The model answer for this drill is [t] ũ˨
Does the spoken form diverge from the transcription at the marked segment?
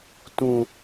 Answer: no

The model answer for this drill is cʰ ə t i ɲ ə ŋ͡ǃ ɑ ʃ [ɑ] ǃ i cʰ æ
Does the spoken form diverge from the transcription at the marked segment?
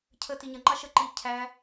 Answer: yes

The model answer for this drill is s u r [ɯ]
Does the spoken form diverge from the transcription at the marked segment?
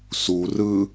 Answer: no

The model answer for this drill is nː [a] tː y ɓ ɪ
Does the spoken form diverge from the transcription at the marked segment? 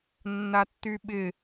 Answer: no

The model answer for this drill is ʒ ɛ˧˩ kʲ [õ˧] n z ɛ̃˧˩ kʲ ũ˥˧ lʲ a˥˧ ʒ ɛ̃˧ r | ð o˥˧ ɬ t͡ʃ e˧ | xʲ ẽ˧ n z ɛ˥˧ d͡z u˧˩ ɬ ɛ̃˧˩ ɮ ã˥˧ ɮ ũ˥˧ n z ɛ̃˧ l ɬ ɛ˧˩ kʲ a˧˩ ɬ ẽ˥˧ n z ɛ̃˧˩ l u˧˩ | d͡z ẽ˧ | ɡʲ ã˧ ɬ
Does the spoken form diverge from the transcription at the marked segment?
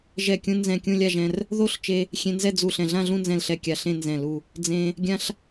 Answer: yes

